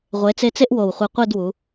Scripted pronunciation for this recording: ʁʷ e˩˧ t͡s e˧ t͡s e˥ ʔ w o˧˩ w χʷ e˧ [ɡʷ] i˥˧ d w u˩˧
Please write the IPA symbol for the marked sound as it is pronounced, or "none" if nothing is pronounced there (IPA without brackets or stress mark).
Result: qʷ